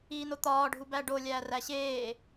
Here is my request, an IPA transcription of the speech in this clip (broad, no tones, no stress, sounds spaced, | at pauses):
iː n o t̪ ɒː ɖʱ u b æ ɖ o lʲ æː r æ ɕ eː